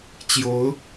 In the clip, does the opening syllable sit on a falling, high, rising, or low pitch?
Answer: rising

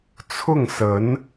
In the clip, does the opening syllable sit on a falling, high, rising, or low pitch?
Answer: falling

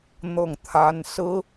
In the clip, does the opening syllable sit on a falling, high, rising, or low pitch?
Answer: falling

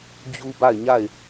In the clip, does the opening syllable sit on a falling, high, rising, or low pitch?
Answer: high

